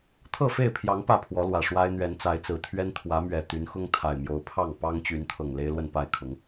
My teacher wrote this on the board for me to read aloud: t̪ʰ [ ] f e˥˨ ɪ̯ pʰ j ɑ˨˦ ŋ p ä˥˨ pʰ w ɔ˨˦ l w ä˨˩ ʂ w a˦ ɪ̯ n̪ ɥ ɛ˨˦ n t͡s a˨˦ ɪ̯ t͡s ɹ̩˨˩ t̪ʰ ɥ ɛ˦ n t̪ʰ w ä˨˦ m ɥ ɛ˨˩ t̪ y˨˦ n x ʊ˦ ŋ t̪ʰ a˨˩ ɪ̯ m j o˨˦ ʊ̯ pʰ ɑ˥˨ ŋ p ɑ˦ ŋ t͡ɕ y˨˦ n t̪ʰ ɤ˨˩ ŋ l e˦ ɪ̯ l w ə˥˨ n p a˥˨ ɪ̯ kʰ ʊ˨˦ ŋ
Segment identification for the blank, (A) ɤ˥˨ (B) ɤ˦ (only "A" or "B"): A